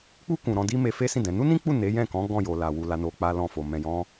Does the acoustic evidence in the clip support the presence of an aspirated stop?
no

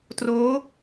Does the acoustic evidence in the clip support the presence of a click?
no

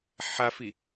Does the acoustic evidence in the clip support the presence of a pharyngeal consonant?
yes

